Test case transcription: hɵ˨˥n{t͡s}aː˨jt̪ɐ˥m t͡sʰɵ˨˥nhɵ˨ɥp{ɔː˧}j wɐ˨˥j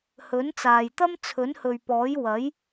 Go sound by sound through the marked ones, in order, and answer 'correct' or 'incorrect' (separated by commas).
correct, incorrect